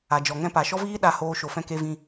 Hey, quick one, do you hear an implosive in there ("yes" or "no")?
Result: yes